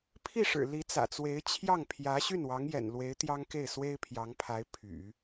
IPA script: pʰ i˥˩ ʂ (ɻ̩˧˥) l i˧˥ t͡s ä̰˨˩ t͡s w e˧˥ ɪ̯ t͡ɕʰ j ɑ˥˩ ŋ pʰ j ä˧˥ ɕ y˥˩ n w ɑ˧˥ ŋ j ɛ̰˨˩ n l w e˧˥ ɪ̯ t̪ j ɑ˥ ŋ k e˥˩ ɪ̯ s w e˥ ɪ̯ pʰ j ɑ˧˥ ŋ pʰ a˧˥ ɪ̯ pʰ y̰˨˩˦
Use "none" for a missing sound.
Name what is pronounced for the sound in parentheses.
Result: ɻ̩˨˩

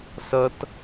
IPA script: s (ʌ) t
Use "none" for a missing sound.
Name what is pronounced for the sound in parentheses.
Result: ʌ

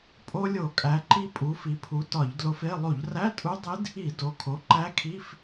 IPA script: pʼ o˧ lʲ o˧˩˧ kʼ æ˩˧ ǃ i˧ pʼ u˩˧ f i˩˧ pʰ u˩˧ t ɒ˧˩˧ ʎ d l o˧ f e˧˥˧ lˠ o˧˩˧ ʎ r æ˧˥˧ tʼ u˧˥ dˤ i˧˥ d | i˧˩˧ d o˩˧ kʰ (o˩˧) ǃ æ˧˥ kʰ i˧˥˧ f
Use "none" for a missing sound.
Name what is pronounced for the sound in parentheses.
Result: o˩˥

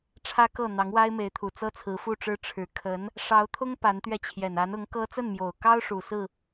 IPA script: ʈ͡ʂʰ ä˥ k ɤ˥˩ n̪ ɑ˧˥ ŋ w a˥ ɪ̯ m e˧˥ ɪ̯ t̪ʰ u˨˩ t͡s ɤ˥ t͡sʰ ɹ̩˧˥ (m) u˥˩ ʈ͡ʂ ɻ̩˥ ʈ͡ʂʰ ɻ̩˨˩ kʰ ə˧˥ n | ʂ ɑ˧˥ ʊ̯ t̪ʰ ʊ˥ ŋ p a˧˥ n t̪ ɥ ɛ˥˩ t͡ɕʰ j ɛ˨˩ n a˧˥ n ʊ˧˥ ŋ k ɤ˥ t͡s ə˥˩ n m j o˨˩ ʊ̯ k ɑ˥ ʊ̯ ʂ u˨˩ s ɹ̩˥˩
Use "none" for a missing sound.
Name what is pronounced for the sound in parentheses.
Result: f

